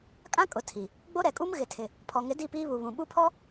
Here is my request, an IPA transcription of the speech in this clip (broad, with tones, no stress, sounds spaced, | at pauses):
kʼ ã˦ kʼ ʊ˨ tʰ i˨ | ɡ͡b o˦ ɾ ɛ˨ kʼ u˦ m ɣ ɪ˨ tʰ ɪ˨ | pʰ ɔ˨ ŋ ɪ˨˦ d i˦˨ p iː˦ β u˨ β ũ˨ ɓ u˦ pʰ ɔ˦